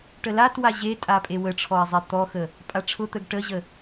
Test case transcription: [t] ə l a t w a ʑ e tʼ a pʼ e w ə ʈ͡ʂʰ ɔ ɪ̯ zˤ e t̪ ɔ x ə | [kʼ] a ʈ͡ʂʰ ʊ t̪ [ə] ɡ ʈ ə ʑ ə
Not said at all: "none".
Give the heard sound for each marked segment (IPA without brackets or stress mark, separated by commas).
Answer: ʈ, pʼ, ə